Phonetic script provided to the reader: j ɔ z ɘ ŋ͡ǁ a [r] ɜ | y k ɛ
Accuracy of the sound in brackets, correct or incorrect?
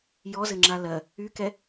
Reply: incorrect